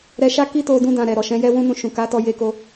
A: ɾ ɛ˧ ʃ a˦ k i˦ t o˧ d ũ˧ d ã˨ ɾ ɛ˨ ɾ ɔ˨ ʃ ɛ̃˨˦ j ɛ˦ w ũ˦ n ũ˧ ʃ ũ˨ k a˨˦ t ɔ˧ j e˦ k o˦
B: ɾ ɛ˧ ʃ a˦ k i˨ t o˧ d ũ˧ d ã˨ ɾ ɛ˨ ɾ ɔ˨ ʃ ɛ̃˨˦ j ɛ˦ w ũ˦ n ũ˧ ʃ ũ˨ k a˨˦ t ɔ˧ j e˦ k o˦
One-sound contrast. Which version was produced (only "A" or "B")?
A